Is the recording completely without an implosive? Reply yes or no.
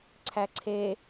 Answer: yes